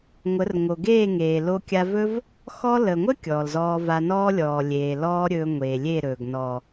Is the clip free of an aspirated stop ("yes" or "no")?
yes